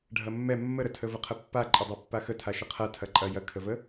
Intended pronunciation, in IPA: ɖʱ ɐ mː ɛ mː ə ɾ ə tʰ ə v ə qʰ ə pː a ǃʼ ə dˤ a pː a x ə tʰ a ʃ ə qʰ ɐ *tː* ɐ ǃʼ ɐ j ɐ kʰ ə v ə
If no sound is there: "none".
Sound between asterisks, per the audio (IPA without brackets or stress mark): tʰ